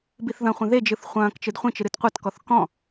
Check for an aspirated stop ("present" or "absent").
absent